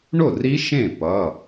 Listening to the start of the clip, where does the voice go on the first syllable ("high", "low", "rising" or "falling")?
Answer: falling